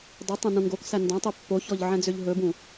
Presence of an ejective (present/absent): absent